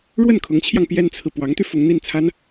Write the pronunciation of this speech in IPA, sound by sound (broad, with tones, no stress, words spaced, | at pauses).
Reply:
ɻwə˥˩nkʰʊ˧˥ŋt͡ɕʰjɑ˧ŋ pjɛ˥nt͡sʰɹ̩˨ pwɑ˧˥ŋt̪y˧ fʊ˧˥ŋn̪i˥˩nt͡sʰa˥n